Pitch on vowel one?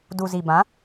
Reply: low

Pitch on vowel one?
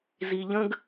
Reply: low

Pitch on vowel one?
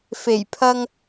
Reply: low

